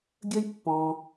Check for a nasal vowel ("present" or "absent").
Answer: present